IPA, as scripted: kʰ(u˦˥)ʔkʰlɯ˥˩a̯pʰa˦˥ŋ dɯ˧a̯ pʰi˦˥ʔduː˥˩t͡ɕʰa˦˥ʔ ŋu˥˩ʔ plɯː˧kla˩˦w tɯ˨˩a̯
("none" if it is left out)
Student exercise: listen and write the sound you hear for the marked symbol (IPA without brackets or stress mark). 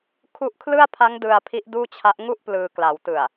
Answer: u˦˥